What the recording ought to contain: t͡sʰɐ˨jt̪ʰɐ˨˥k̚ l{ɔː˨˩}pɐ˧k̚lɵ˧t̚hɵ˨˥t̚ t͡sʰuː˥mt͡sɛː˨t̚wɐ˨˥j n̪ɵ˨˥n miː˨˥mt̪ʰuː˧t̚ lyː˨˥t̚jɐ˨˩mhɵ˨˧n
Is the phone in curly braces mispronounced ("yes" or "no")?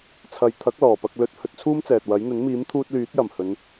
no